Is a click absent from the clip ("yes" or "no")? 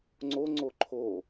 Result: no